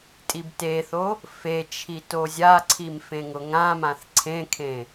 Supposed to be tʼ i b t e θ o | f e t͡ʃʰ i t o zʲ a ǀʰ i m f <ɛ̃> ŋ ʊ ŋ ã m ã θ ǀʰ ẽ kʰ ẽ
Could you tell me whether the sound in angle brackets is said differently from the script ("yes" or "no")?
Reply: yes